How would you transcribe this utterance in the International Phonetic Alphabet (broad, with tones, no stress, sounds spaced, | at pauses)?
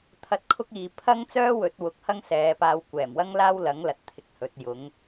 t̪ʰ ɐ˧ t̚ kʰ ʊ˥ k̚ iː˨ pʰ ɐ˥ ŋ t͡s œː˥ w ɵ˨˥ t̚ w ʊ˨˥ k̚ h ɐ˥ ŋ s ɛː˨˧ p aː˧ w kʷ ɛː˨˩ m w ɐ˥ ŋ l aː˥ w l ɐ˨˥ ŋ l ɐ˧ t̚ t̪ʰ ɪ˨˥ k̚ h ɵ˨˥ t̚ j ʊ˨˥ ŋ